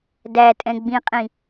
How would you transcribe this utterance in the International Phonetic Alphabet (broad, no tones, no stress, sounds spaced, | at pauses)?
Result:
d æ tʼ ɛ̃ ɡ͡b ĩ qʼ ĩ